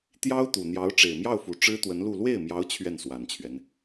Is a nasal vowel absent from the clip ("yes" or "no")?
yes